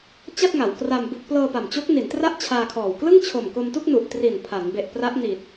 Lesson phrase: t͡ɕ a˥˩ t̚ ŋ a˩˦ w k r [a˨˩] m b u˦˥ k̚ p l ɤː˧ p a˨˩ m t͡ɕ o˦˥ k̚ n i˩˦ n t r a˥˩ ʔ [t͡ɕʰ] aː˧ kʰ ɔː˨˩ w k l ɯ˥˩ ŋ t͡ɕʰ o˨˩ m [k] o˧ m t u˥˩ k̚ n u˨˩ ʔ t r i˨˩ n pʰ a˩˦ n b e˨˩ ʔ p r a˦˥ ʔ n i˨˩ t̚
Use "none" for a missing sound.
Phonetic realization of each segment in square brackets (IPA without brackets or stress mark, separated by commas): a˧, t͡ɕʰ, k